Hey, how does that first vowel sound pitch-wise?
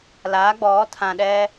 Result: rising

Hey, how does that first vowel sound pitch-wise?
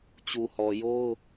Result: low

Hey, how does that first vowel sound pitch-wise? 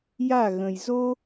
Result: falling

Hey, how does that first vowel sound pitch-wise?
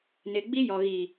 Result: low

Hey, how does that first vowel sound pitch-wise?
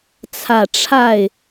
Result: low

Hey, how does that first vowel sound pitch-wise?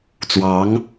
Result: rising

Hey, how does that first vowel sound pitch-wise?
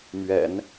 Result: low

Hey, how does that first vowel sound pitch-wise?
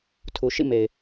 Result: low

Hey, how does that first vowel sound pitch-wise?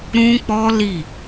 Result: high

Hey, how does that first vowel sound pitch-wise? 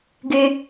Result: low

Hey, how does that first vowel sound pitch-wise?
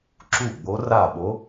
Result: falling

